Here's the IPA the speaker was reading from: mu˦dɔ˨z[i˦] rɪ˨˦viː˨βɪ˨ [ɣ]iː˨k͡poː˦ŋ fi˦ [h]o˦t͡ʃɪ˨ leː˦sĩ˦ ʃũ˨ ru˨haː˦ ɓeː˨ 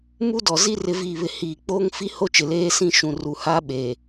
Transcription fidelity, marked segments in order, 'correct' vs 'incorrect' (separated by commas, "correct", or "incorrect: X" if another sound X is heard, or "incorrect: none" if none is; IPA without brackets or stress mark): correct, incorrect: h, correct